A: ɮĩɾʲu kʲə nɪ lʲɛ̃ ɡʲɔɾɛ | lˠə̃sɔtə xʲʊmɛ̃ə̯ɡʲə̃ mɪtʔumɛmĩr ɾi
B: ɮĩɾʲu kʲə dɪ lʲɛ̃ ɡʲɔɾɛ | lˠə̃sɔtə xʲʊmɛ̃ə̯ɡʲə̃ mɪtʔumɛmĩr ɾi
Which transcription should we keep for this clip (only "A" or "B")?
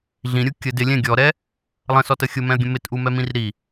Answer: B